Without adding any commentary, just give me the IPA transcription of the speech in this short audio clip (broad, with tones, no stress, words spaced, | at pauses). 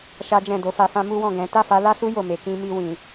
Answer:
ʃa˦d͡ʒɛ̃˦˨ do˨˦fa˧fã˦ mu˦wɔ̃˦˨ ɡɛ̃˨˦ ta˦˨fa˨˦la˦su˦ jo˦˨me˧ kĩ˧mi˧ wĩ˨